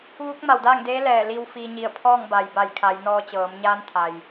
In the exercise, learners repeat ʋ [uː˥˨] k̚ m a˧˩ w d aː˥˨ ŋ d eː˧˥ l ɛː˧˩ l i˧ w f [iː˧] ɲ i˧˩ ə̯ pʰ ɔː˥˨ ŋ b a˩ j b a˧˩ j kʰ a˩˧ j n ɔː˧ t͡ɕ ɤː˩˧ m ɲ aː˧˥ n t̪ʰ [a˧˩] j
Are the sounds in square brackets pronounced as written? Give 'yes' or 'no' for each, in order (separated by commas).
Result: no, yes, no